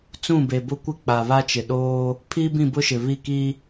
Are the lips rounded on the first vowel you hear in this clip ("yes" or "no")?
yes